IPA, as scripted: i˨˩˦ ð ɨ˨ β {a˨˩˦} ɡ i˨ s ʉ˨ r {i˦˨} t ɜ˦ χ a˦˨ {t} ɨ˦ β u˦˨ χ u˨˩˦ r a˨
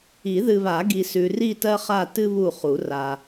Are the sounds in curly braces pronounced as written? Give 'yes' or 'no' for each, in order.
yes, yes, yes

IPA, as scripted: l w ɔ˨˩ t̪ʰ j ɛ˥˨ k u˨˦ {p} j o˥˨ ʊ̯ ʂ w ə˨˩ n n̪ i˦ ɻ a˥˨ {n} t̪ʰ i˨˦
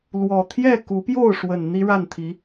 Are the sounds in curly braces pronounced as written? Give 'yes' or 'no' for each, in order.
yes, yes

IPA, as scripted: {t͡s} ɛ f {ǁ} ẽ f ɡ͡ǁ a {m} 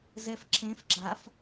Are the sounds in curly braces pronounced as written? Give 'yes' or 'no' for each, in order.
no, yes, no

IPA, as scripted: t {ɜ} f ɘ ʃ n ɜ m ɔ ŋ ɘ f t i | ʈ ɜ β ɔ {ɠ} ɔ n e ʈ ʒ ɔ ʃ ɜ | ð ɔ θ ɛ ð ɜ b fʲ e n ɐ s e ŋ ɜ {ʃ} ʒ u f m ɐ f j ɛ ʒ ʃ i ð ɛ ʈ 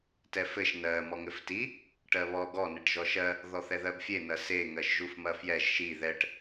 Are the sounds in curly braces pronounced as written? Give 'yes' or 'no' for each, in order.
no, no, yes

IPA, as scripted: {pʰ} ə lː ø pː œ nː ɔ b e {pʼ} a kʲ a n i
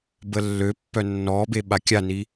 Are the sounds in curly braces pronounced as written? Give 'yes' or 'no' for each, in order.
no, no

